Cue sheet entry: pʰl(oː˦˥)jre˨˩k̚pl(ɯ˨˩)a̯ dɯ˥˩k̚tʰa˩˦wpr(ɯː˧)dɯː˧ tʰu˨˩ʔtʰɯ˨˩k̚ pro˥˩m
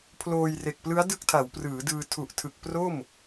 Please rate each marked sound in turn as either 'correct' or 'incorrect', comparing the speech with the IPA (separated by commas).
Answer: incorrect, incorrect, incorrect